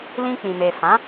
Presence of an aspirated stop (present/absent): absent